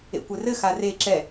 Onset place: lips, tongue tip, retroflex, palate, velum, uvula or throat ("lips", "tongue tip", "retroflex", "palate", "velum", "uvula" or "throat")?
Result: velum